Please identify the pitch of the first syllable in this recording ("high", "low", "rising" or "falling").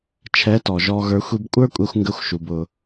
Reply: rising